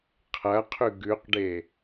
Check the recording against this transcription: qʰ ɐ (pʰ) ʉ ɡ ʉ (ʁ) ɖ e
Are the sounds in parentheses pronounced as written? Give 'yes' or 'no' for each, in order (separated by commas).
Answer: no, no